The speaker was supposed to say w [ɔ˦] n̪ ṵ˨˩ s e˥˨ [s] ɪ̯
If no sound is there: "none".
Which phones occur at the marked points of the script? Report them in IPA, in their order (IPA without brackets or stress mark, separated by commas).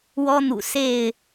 ɔ˦, none